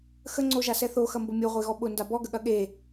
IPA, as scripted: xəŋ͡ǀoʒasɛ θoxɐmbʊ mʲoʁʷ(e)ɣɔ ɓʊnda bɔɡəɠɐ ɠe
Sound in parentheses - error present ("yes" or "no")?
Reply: no